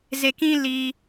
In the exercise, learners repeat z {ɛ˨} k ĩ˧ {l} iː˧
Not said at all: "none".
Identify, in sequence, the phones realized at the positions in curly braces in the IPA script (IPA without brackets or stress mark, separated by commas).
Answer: e˨, l